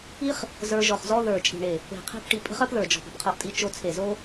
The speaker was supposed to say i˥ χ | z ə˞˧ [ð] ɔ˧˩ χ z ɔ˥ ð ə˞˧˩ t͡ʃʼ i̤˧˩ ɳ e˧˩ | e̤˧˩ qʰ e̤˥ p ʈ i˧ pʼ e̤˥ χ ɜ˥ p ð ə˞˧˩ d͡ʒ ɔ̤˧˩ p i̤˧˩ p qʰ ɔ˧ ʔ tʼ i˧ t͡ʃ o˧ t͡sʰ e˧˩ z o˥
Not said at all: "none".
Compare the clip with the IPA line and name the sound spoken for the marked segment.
ʒ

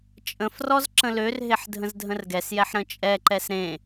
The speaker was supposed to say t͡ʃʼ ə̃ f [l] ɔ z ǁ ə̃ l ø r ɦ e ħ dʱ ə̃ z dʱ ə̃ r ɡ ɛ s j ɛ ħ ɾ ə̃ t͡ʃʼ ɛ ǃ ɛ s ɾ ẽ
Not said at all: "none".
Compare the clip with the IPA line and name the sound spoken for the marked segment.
r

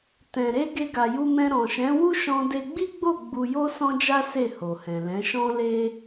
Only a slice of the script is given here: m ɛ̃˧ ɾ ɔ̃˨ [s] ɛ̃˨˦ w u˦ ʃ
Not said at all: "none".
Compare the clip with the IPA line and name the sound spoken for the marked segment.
ʃ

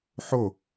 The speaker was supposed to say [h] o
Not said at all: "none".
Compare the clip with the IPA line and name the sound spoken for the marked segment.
ħ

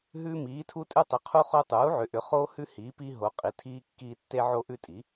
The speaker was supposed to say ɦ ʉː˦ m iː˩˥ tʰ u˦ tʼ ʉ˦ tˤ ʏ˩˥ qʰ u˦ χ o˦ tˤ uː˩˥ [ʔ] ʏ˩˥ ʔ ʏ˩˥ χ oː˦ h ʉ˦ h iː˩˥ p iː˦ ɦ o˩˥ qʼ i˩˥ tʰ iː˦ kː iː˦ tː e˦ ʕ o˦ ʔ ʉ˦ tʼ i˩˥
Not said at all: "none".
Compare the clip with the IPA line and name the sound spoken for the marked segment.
ʕ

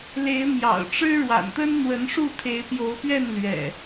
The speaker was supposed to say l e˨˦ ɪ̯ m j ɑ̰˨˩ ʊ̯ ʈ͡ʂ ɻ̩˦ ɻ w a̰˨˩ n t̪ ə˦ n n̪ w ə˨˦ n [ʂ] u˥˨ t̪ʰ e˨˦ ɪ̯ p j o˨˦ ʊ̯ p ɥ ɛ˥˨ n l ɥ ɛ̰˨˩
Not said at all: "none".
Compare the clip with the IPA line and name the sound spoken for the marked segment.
ʂ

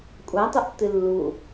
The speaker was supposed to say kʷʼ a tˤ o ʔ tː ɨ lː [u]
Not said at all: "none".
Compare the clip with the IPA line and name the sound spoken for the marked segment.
u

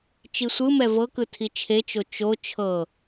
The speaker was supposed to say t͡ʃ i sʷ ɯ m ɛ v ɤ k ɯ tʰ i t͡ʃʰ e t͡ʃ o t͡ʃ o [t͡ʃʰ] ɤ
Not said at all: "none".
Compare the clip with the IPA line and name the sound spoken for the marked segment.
t͡ʃʰ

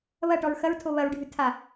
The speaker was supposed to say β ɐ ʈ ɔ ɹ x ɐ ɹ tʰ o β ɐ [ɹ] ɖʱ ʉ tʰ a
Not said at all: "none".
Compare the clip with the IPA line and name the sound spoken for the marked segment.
ɹ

